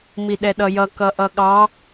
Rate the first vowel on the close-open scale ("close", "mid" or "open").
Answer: close